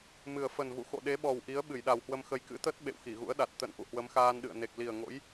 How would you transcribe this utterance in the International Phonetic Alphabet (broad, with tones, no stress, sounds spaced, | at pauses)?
m ɨ˨˩ ə̯ f ə˨˩ n v ṵ˧˨ x o̰˧˨ ɗ e˨˦ ɓ ɔ˨˩ w ʔ i˨˦ ə̯ ɓ ɨ˧˩ j ɗ a˨˩ w h w ə˧ m x ə˧ j k ɨ̰˧˥ t̪ ə˦˥ t̚ ɓ ḛ˧˨ w x i˧˩ ɣ ṵ˧˥ ə̯ ɗ a˨˩ t̚ t̪ ə̰˧˨ n ʔ ṵ˧˨ h w ə˨˦ m x aː˧ n ɗ ɨ̰˧˨ ə̯ n e˨˩ k̚ l i˨˩ ə̯ ŋ o̰˧˥ j